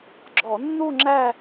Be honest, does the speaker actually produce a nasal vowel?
no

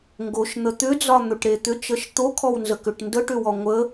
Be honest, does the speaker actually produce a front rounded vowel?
yes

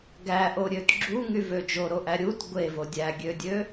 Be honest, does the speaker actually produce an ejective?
no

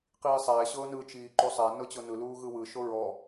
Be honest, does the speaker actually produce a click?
yes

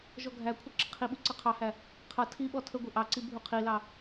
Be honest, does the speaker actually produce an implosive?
yes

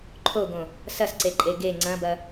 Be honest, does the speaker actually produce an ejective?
yes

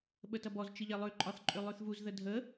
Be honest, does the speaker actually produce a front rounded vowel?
yes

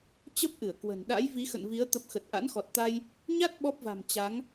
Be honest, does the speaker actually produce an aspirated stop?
no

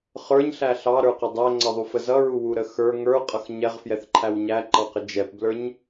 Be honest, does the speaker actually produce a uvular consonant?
yes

